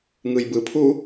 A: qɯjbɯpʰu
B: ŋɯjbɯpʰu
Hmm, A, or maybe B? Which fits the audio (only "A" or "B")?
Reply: B